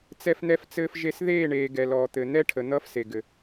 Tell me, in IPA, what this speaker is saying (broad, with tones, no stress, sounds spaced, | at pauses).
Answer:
t͡s ɛ˦ f n̪ ɛ˦ f t͡s ɘː˦ f ʒ e˦ s ð eː˦˨ ɳ eː˨ ɡ ɛ˨ l ɔː˨ t̪ ɘ˨ n̪ ɛ˦ ʈʰ ə˨ n̪ ʌː˦ f s e˨ ɡ ɘ˨